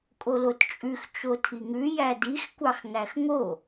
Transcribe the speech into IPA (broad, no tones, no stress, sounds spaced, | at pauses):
kʼ o l o t t͡ʃʼ ʉ x t͡ʃ o tʰ i ŋ ʉ j æ d i x kʷ ɑ x ŋ æ x ŋ o